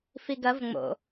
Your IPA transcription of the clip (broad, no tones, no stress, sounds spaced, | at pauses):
f i ɡ ɐ v ŋ͡m o̰